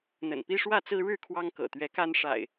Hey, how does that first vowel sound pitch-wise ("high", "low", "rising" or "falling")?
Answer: low